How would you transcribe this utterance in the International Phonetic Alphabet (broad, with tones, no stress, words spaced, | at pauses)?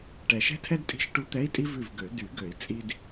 ʈɛ˨˩ʃɛ̤˥tʰɛ˥d tʼi̤˧˥˧ʃʈu˧˥ t̪ɛ˧˥˧i̯tʼi˥ vʉ˦˨vɡø˨˩˦ dy˨˩˦ɡø˨˩˦i̯ t͡sʼi˥d